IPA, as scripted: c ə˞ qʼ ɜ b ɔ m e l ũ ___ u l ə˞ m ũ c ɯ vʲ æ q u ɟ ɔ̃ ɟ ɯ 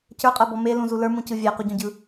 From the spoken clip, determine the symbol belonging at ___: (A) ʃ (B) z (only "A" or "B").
B